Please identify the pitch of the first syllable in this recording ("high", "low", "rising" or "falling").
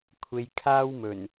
low